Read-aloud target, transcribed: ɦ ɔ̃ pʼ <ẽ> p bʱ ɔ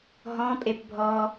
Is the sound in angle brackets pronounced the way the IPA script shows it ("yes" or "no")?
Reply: no